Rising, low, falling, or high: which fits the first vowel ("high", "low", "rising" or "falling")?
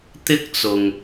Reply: high